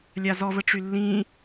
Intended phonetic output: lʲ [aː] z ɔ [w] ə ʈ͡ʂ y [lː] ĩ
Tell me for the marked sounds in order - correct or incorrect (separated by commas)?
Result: incorrect, incorrect, correct